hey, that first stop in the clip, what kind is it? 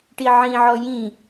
plain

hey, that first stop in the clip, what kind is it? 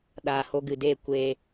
implosive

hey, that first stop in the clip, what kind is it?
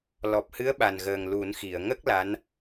plain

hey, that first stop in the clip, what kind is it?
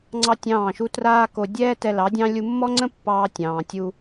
click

